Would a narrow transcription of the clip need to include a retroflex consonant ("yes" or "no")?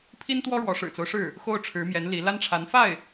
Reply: yes